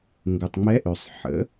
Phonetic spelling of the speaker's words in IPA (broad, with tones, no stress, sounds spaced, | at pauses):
ŋ ɡ u˩ tˤ ŋ͡m ɛ˧˥ ʔ ø˩ sˤ ħ ə̰˩˥